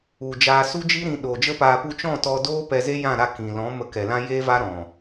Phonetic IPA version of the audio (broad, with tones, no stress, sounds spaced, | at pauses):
u˨ d͡ʒ aː˧ s u˦ d͡ʒ i˦ ɾ ĩ˧ ɗ oː˨ d͡ʒ ə˦ p aː˧ p u˧ t͡ʃ ɔ̃˦˨ t ɔ˧ d oː˦ p ɛ˧ z e˦ j ã˦˨ ɾ a˧ k ĩ˨ l ɔ̃˨˦ m ə˧ k ɛ˨ l ã˦ j eː˦ v a˦ ɾ ɔ̃˨